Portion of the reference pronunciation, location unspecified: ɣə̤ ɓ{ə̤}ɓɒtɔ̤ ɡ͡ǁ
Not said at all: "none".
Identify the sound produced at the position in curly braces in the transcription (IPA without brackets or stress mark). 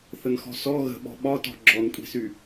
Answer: ɔ̤